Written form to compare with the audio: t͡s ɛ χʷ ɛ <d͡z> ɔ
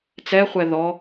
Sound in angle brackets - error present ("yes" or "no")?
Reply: yes